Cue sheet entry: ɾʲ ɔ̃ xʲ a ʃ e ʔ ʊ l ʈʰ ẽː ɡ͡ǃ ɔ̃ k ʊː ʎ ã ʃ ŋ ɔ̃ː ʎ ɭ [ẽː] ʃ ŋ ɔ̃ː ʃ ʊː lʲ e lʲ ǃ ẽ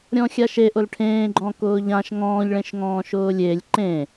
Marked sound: incorrect: ẽ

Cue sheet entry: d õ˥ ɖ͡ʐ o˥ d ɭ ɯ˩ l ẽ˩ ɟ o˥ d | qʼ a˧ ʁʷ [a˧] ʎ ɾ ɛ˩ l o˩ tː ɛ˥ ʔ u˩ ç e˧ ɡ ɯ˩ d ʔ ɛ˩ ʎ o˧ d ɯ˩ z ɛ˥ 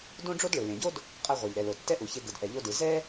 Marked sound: incorrect: a˩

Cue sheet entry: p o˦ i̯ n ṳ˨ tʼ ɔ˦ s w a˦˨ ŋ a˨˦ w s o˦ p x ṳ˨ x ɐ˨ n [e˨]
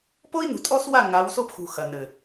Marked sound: incorrect: ɘ˨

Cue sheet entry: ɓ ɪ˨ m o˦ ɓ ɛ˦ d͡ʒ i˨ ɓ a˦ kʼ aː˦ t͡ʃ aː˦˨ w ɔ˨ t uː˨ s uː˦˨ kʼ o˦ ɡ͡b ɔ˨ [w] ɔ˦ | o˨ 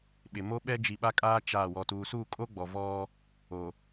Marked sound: incorrect: v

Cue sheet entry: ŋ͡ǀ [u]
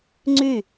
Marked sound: incorrect: y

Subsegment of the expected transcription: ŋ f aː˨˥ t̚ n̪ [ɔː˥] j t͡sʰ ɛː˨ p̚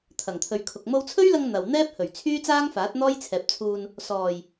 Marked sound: correct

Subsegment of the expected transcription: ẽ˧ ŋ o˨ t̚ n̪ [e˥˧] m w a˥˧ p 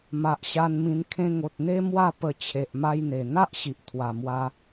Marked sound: incorrect: e˦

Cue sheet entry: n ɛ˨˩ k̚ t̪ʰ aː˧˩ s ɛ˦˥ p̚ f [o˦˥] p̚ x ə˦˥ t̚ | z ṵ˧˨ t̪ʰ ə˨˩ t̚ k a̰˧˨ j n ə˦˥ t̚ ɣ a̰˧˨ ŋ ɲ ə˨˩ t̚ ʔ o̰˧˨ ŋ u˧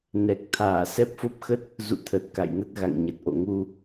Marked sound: correct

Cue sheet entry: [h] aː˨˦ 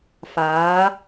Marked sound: incorrect: f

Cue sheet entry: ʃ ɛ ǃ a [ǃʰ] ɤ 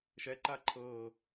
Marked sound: correct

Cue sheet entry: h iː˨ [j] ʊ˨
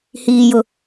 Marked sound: correct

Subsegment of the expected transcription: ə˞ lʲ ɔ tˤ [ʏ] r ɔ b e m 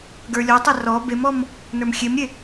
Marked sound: incorrect: ɛ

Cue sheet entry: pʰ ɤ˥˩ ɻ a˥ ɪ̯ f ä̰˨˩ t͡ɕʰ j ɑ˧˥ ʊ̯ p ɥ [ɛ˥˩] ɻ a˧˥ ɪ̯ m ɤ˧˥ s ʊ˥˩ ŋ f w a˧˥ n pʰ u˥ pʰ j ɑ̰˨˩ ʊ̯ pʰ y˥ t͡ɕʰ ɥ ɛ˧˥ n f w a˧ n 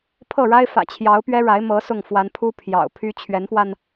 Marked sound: incorrect: ɛ˥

